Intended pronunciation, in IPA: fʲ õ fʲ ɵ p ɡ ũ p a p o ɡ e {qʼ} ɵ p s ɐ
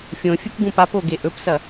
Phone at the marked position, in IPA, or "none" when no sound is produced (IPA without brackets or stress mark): ʔ